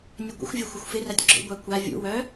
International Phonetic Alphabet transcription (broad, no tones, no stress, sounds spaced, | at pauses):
nʲ ə ɡʷ ə̰ xʷ vʲ œ xʷ ɪ xʷ f ɪ r a tʲ ɡ͡ǁ o̰ ɡʷ a kʷ a vʲ ṵ w œ